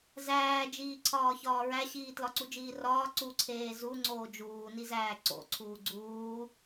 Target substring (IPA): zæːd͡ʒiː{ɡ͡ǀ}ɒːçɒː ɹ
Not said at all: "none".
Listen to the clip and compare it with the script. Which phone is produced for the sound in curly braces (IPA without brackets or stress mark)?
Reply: ǀʰ